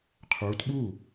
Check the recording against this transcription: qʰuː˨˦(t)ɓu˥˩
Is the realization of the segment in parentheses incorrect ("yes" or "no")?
no